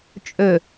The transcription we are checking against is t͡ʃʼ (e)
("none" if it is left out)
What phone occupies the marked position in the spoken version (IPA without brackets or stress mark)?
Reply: ø